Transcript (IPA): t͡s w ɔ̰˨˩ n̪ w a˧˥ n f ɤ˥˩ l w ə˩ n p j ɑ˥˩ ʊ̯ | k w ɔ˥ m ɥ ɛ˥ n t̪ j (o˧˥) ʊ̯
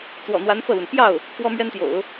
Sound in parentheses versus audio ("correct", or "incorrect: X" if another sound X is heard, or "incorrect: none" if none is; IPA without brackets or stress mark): incorrect: o̰˨˩˦